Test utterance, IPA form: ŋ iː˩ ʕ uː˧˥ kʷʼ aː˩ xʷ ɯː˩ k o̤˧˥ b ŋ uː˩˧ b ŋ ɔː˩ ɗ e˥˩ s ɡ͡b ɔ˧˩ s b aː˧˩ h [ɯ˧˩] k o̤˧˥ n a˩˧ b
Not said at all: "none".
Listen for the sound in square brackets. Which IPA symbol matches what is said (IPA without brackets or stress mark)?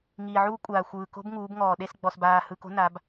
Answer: ɯ˧˩